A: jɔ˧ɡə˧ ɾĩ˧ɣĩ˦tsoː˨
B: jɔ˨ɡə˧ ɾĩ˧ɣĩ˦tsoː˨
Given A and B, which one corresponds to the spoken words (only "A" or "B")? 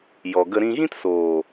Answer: B